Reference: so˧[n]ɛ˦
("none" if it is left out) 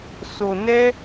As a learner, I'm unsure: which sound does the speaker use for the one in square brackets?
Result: n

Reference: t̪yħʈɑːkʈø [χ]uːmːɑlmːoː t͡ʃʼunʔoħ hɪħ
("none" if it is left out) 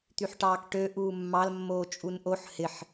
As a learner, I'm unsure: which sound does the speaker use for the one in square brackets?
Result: ʔ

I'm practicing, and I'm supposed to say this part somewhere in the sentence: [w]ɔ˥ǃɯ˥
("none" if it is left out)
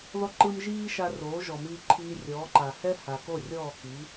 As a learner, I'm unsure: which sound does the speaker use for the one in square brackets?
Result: ð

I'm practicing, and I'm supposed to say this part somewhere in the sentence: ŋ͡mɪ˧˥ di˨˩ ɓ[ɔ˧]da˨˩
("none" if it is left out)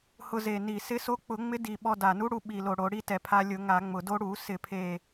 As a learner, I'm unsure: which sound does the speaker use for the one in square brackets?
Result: ɔ˧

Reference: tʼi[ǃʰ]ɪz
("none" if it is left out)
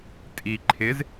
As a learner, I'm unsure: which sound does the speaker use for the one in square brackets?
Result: ǃʰ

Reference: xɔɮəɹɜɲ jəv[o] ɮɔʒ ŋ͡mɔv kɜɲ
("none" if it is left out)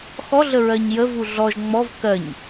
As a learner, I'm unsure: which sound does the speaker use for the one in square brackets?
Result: u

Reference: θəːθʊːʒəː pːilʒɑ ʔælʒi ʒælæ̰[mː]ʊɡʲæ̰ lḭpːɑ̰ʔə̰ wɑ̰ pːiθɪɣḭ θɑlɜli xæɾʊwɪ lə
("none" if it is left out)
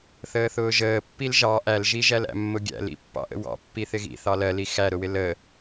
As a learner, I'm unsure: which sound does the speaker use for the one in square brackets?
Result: mː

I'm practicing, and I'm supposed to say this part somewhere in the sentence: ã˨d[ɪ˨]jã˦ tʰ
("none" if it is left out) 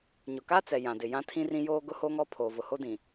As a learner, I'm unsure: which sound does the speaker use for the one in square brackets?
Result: ɪ˨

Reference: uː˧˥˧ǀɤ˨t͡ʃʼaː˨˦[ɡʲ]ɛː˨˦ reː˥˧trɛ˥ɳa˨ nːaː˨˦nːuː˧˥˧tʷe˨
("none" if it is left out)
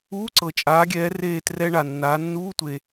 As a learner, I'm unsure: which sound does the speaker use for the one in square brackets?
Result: ɡʲ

